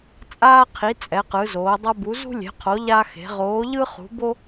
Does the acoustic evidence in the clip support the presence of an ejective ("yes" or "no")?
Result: yes